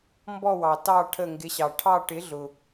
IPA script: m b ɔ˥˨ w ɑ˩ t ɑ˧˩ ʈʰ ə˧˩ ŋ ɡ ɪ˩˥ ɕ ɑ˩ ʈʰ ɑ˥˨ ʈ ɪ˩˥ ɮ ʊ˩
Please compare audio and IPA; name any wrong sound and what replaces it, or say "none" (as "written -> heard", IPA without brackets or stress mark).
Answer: none